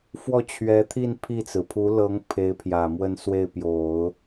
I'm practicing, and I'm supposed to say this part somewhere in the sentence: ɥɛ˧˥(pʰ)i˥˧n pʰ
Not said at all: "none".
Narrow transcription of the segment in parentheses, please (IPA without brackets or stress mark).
t̪ʰ